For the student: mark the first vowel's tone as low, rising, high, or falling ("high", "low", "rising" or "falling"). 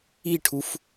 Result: falling